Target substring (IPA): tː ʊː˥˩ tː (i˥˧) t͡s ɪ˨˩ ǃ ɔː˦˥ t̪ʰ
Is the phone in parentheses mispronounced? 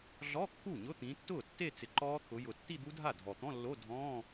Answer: yes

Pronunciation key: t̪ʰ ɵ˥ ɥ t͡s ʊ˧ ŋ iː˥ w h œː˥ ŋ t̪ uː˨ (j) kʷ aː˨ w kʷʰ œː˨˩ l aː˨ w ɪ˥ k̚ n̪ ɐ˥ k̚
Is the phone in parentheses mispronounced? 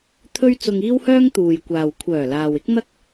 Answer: no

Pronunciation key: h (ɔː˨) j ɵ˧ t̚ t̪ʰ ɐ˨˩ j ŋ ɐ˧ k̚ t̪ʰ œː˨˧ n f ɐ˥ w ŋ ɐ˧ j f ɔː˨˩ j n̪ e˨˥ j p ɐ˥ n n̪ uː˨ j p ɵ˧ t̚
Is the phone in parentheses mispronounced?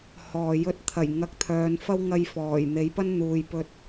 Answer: no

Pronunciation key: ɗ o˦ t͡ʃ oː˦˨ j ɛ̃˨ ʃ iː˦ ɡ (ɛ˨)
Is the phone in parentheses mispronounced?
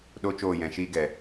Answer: no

